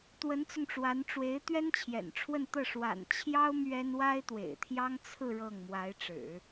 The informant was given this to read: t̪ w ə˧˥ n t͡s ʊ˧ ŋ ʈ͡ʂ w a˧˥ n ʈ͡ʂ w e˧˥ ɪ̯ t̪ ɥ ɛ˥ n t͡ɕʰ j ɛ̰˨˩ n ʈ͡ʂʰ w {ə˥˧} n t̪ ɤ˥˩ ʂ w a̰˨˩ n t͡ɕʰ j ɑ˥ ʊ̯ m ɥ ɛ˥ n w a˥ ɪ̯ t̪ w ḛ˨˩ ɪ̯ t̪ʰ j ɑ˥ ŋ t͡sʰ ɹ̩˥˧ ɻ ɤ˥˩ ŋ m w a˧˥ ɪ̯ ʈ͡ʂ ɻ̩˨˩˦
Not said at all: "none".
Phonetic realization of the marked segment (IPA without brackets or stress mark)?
ə˥˧